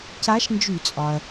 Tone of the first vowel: rising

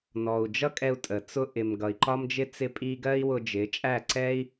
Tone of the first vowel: low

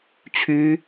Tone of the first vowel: high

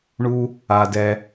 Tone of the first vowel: high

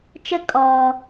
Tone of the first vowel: high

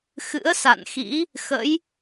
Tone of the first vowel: rising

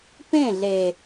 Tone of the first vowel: falling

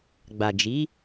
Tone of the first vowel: low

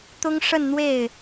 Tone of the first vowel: high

